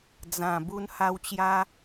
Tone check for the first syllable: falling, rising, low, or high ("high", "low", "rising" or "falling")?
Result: low